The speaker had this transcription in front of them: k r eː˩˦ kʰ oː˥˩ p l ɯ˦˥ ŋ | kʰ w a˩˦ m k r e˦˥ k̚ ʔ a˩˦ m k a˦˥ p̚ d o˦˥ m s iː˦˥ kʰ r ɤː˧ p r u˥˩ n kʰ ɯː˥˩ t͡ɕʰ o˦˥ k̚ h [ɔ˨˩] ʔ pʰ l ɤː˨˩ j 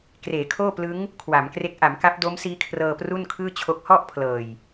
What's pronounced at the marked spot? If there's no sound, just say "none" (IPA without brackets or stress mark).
ɔ˥˩